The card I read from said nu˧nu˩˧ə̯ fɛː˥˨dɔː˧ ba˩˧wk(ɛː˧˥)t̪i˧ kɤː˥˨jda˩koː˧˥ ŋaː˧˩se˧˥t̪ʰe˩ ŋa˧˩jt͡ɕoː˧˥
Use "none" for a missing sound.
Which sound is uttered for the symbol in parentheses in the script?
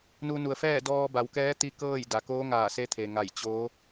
ɛː˧˥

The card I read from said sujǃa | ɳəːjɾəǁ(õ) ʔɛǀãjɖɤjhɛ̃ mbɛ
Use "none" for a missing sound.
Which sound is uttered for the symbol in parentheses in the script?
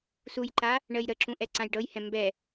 ũ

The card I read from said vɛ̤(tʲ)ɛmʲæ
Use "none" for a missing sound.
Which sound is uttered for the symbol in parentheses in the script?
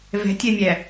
tʲ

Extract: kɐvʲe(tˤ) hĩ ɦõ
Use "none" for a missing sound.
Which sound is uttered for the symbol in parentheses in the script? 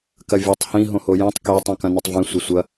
tˤ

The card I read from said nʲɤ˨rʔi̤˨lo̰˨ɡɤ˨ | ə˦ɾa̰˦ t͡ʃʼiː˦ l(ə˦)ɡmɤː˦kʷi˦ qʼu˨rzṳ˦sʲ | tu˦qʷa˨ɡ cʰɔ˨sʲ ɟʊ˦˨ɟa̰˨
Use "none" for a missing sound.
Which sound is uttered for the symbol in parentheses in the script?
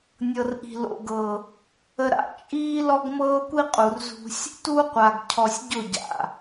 ɔ˦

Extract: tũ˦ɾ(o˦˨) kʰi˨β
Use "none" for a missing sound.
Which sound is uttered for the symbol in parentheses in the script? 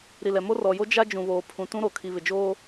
o˨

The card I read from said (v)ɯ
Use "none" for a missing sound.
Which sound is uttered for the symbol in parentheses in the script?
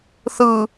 θ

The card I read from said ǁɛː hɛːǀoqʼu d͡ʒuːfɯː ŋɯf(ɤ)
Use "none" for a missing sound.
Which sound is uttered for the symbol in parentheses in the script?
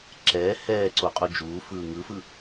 ɯ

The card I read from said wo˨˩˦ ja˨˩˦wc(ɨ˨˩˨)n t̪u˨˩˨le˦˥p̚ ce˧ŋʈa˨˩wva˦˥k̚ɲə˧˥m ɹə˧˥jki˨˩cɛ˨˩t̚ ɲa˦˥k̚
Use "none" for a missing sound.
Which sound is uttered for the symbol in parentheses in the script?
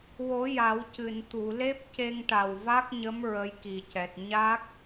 ɨ˨˩˨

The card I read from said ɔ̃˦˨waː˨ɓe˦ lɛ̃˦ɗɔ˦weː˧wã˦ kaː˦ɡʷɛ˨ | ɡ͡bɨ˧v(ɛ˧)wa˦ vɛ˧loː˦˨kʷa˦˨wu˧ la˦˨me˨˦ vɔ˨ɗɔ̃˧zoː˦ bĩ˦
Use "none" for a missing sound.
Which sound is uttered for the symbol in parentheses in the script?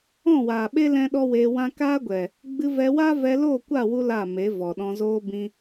ɛ˧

